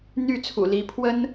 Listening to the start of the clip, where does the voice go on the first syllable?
falling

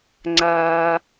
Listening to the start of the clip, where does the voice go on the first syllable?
low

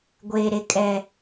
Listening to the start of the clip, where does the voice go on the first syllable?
low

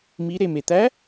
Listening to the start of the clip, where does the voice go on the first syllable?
rising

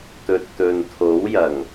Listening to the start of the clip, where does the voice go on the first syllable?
low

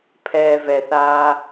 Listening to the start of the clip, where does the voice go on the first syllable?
low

